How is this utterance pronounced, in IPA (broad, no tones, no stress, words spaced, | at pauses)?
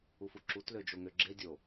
ufuǁut lød͡ʒoŋøɡ͡ǁe dʲo